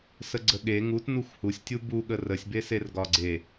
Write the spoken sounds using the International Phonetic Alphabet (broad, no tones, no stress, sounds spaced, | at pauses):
s ə ɡ͡ǀ ə ɠ e ŋ u t n u xʷ h u sʲ tʲ u b u ɠ ə r ə sʲ b e s e r ɡ ɒ ɡ͡ǀ e